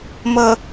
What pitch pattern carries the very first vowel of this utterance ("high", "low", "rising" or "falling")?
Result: low